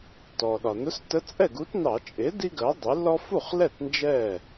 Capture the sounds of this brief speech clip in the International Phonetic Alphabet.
t ɔ˩ ɗ ɒ˩ n ʊ˧˥ s t ə˧˥ t͡sʼ ɛ˥˩ ɡ u˧˥ t n ɑ˧˩˧ t͡ʃʼ ɪ˩˥ d i˥ ɡ ɜ˩˥ dˤ ɛ˩˥ l ɔ˥ f u˥˩ χ l ɛ˥˩ t n d͡ʒ ɛ˥˩

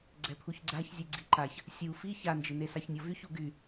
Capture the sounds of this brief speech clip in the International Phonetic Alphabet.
ɡ͡ǀ ɛ pʰ u ç ɡ͡ǀ a ç zʲ e ɡ͡ǀ i ǃ a ç | sʲ u f i ç a n d͡ʒ ɪ n e s a ç nʲ ɔ v y ç u ɡ y

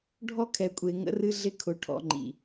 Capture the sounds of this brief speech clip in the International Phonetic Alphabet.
ɖʱ ɔ˦ kʰ ɛ˨ kʷʼ e˨ ŋ ə̰˦ r ɨ˦ ɮ ɪ˦ kʰ ʊ˨ ʈʰ ɔ̰˨ ŋ͡ǃ ḭ˨

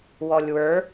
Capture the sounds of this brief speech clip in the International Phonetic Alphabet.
w ɔ lʲ w ə˞

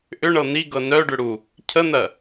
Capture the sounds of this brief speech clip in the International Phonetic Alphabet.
ʔ ʏ ɳ ɤ n̪ i ɡ ɤ n œ ɖ ʏ ɽ u | cʰ ə n̪ ɜ

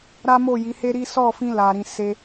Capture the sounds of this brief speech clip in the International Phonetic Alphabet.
ɾ a˦ m o˦˨ j i˨˦ h e˦ ɾ i˦ s ɔ˦˨ f ĩ˧ l a˨ ɾ ĩ˨ s e˧

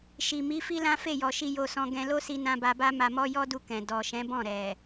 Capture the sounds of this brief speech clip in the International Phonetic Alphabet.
ʃ i˨ m i˨˦ f i˦ l ã˦ f e˦˨ j ɔ˨ ʃ i˧ j o˧ s ɔ̃˧ ɡ ɛ̃˧ l o˦ s i˧ n ã˧ b a˧ b a˦ m a˧ m ɔ˦ j ɔ˦ d u˧ k ɛ̃˨ d ɔ˨ ʃ ɛ̃˨˦ b ɔ̃˦˨ ɾ ɛ˨

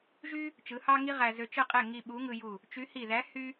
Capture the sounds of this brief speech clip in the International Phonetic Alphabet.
ʒ y˥ | t͡ʃ ɯ˨˥ h ɑ˥ ŋ i˥ ʁ æ˧ z ø˧ t͡ʃ ɯ˥˩ qʼ e˥˩ ŋ i˧ ɓ u˨˥ ŋ ɯ˧ j u˧˩ | t͡ʃ y˨˥ h i˧˩ ð æ˨˥ h y˥

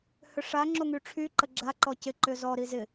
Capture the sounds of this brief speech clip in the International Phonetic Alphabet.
h ʏ ʂ a ŋ͡ǁ o ŋ y ʈ͡ʂʰ y ǃ ə ɡ͡ǁ a ǃ ɔ c ɪ ǃ ʏ z ɔ ɾ i z ɪ

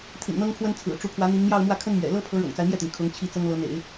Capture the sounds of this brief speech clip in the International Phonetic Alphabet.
t̪ʰ ḭ˨˩ n n̪ ɤ˥ ŋ kʰ w ə˥ n t͡sʰ ɹ̩˨˩ ʈ͡ʂ u˧˥ pʰ w ä˧˥ n̪ i˧˥ ŋ m j ɑ˥˧ ʊ̯ m w ä˥˩ kʰ ə˥ n m ɥ ɛ̰˨˩ l ɤ˥ pʰ ɤ˧˥ ɻ ɤ̰˨˩ ŋ t͡s a˦ ɪ̯ m j ɛ˥˩ t̪ i˩ ŋ kʰ ʊ˧˥ ŋ t͡ɕʰ i˥˩ t͡s ɤ˥ ŋ l ɤ˧˥ n̪ ḛ˨˩˦ ɪ̯

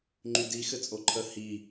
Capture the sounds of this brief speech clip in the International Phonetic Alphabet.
ŋ͡ǃ y d i x ɘ t͡sʼ o ǃʰ ə h i

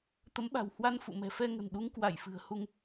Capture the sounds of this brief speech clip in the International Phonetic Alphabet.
t̪ ə˨˦ m ɓ a̤˨˩ w h w a˧ n f ṵ˧˨ m ɛ̤˨˩ f ɛ˧ ŋ ə̤˨˩ n ɗ u˨˦ ŋ k w a˧˩ j f ɨ̤˨˩ ə̯ h u˧ ŋ

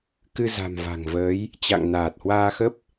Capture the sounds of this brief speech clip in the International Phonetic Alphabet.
k ɨ˧ z a̤˨˩ m v a̤˨˩ ŋ v əː˨˦ j | t͡ɕ a̰˧˨ ŋ n aː˨˩ t̚ h w aː˧ x ə˦˥ p̚

